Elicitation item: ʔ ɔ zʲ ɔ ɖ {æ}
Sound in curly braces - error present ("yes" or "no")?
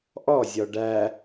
no